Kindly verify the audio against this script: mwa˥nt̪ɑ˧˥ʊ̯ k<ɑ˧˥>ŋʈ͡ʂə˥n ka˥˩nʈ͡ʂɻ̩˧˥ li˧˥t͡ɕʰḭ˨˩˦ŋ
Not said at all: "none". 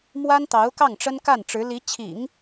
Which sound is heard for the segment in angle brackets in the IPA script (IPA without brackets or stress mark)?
ɑ˥˩